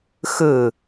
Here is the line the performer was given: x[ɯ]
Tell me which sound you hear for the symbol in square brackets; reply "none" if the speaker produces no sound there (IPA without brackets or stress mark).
ɯ